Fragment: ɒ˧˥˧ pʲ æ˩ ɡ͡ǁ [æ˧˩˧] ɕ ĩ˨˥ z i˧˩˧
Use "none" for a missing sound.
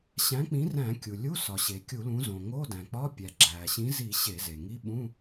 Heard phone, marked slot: æ˩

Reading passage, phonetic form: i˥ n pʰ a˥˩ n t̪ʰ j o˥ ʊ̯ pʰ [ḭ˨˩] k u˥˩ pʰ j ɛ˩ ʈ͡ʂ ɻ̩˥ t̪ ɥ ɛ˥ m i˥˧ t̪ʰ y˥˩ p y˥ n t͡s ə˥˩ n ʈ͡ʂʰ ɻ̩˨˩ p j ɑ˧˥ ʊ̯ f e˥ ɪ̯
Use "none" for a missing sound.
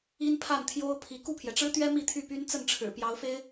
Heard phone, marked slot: i˧˥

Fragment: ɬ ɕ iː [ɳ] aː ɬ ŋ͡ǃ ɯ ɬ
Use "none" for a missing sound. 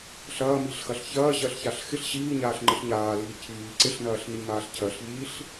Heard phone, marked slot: ɲ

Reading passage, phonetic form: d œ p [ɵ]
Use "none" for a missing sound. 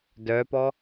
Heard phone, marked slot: ɔ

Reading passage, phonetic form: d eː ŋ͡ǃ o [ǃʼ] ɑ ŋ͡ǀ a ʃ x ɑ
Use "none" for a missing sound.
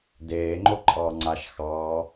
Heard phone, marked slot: ǃʼ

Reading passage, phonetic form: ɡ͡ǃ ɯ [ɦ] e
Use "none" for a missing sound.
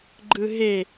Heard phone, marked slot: ɦ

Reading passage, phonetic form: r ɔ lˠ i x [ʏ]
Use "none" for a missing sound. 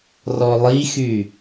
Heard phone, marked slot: y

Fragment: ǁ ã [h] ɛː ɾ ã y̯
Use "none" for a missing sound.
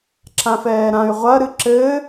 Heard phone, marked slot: f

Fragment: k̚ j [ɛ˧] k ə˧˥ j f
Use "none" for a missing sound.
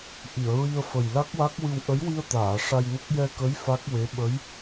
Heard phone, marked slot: ɛ˧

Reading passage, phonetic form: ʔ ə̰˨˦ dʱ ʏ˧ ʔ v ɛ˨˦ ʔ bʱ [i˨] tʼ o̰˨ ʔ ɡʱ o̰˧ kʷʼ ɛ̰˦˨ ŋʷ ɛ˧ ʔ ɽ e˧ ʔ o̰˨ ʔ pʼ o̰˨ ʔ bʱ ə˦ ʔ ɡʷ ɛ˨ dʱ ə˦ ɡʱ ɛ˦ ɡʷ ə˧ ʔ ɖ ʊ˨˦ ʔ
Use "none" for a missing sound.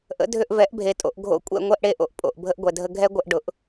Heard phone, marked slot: e˨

